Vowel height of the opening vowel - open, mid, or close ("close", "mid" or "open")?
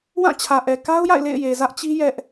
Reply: open